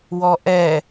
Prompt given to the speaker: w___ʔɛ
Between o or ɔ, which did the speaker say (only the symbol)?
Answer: ɔ